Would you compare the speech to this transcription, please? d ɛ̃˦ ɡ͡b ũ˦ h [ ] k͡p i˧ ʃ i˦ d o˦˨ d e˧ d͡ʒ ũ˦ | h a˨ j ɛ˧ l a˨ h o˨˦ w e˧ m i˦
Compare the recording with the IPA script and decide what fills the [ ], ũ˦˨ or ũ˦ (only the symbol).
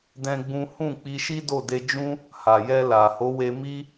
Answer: ũ˦˨